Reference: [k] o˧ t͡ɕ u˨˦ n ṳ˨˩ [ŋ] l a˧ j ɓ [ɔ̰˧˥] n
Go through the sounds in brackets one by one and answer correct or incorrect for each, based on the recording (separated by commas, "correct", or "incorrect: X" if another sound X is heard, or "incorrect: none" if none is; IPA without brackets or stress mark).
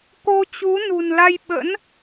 correct, incorrect: n, incorrect: ə̰˧˥